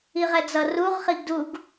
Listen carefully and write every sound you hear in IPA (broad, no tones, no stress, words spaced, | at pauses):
iʁɛd͡zʌ ruʁ χiɡduɡ